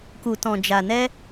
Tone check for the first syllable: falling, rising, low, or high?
low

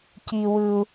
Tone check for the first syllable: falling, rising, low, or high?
high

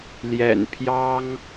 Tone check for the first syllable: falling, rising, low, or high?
low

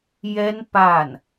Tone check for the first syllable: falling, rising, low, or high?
high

